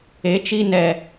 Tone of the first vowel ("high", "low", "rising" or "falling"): rising